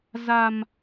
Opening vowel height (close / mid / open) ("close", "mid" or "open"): open